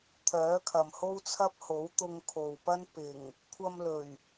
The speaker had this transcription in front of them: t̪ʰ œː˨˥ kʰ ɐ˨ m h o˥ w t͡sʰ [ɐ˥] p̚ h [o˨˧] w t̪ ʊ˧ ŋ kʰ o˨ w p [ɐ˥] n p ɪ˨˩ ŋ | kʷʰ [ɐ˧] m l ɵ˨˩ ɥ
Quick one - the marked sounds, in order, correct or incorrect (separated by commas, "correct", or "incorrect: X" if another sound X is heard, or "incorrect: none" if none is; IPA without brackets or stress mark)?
correct, incorrect: o˨˥, correct, correct